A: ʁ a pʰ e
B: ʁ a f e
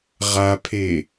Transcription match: A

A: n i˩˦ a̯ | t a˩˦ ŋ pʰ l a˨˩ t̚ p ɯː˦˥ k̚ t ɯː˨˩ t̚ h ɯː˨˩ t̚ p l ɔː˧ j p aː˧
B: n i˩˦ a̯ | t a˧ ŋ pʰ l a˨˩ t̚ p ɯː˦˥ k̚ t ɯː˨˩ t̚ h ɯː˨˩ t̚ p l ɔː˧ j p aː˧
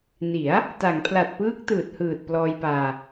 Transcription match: A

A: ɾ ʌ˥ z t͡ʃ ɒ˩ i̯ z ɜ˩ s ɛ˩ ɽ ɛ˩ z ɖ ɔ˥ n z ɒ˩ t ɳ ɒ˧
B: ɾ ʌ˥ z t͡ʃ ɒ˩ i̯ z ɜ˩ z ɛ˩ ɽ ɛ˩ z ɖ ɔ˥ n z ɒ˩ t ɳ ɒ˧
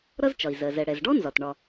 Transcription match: B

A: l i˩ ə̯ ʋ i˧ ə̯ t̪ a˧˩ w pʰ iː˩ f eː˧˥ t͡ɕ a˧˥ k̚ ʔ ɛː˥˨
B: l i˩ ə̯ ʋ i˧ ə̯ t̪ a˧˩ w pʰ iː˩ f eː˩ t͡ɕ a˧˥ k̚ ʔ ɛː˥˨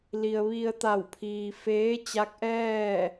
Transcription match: A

